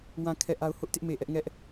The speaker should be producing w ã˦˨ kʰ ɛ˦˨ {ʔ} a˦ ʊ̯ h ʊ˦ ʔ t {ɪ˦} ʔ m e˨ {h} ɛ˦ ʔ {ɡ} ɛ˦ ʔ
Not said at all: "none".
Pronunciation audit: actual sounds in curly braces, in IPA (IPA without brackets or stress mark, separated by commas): ʔ, ɪ˦, ʔ, ŋ